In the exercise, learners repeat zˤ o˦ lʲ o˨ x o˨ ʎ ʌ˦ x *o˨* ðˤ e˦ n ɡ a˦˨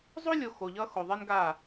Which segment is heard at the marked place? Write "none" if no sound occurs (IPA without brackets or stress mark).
o˨